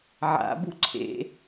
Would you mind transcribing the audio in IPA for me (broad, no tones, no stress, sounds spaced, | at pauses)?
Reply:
ʕ a̰ b u ǀʰ ḛ